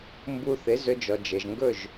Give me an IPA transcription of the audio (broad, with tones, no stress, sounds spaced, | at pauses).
m b u˧ θ ɪ˨˦ z ɵ˧ d͡ʒ ɔ˨ d͡ʒ ɘ˨ ʒ ŋ ɡ ɵ˦˨ ʒ